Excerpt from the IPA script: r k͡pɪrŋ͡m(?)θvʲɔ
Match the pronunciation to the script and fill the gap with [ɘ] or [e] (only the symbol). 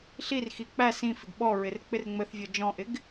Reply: ɘ